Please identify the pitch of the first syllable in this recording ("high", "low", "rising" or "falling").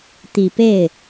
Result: low